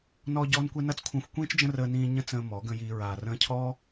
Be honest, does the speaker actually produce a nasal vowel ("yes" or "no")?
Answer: yes